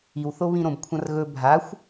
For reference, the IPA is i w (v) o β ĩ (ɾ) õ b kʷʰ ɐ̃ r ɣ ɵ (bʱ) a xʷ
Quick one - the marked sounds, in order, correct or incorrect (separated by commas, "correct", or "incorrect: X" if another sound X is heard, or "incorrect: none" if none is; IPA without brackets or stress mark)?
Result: incorrect: θ, correct, correct